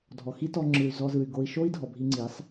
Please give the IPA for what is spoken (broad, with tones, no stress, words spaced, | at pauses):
dʱɔ˨xi˦ tɔ˧ŋ͡ǁɯ˨y̯ zɔ˧zɯ˨y̯ ɡo˧i̯ʃo˦i̯ dʱɔ˨bʱi˧ŋ͡ǀi˨˦sˤ